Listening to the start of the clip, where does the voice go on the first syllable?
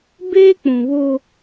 high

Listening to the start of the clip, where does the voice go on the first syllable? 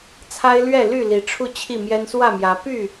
high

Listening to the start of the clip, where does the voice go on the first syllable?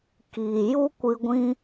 low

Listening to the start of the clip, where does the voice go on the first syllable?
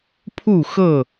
falling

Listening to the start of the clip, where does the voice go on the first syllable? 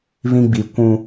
high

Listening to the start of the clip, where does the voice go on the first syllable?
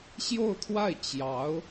falling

